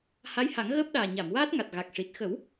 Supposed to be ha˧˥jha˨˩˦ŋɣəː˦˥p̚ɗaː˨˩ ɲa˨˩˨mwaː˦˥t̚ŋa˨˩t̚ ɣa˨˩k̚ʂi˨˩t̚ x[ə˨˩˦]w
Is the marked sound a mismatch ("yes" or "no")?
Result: no